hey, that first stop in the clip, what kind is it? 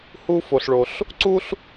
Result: click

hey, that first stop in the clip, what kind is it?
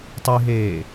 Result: plain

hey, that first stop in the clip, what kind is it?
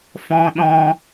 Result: implosive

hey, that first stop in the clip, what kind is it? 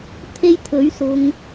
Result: aspirated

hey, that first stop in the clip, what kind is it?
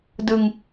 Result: plain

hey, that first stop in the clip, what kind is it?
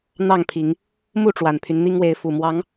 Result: aspirated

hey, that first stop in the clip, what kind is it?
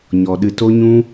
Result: implosive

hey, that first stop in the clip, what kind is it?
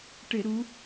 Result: plain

